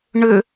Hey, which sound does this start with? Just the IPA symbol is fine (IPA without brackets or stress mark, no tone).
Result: ɳ